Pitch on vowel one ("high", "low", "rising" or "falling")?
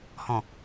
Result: low